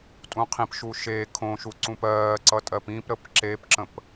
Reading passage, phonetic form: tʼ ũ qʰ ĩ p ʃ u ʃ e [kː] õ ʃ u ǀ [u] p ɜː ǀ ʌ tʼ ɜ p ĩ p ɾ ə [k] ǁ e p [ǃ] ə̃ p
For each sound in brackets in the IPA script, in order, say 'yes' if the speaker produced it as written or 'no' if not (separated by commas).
no, no, no, no